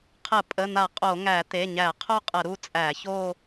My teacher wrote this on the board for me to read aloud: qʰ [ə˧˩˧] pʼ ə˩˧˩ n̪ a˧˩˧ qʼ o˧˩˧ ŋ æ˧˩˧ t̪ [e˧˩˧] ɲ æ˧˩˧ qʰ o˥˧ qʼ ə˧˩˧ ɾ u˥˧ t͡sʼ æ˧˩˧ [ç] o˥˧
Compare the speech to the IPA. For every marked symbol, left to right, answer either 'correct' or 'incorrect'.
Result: correct, incorrect: e˩˧˩, correct

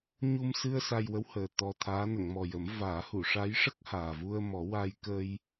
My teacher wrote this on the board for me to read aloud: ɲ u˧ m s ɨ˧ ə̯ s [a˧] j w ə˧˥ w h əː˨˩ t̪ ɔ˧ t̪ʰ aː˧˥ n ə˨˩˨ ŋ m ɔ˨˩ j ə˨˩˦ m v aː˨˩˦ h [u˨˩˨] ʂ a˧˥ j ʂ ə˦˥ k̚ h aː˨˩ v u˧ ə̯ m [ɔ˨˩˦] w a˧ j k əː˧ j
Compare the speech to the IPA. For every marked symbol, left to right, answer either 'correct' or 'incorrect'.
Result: correct, correct, correct

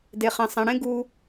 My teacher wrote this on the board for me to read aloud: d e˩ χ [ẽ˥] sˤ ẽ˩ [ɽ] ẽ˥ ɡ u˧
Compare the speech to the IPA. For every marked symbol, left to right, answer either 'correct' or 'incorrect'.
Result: incorrect: ẽ˩, correct

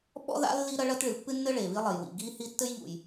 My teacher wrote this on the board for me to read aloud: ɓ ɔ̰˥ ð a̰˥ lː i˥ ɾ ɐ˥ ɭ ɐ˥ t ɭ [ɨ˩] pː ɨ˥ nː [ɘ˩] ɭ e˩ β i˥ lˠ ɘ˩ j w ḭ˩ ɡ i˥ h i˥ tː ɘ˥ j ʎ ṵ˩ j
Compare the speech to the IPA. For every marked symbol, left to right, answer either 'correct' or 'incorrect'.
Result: correct, incorrect: ɘ˥

